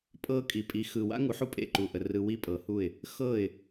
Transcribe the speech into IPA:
pʼ ɤ˧ kʼ i˩ pʼ i˩˥ x ɯ˩ w a̰˥ ŋ u˩˥ ħ u˥˩ pʼ ḛ˥˩ ǃ u˩ ʔ ə˩ r ɯ˧ w i˥ pʼ ɤ˩˥ h u˥˩ ɪ̯ | x ɤ˥˩ ɪ̯

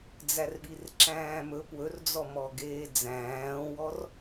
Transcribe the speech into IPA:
d͡z æ r ɓ i r ǁ æ̃ː m ɵ p w ɵ r d͡z ɔ m ɔ ɡ eː d͡z æ̃ː w ɔ r

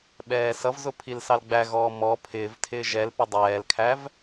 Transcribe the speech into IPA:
ɓ ɛː s ʌ v z ʊ pʰ i l s ɑ l ɡ͡b æ ɣ ɔː m ɔ pʰ ɪː v tʰ ɪː ʒ ɛ l p ɪ dˤ ɛː l kʰ æ v

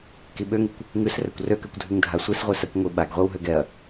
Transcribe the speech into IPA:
k i ɓ ø ŋ i kʷ | ŋ ʉ s r ɛ kʷ r ø k ø kʷ dʱ ʉ ŋ dʱ a sʷ i s ʁʷ i s a kʷ ŋʷ i ɓ a ɡ ʁʷ i w ɦ ø ɡ ɛ ɐ̯

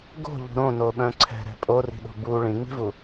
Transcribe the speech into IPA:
ɡ o̤ ʎ ṳ ɾ õ n o ɓ œ̃ ǀʰ ɛ̤ ɾ ɛ̤ pʼ o r i̤ ɗ o̤ b u ɭ ĩ ŋ͡m i̤ v u

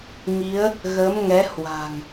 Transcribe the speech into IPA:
ŋ i˨˦ ə̯ | ɣ ə˨˦ m ŋ ɛ˨˦ h w a̤˨˩ ŋ

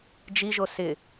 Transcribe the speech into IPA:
d͡ʒ i ʒ o s ɪ

